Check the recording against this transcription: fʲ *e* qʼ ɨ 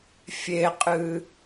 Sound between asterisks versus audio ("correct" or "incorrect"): correct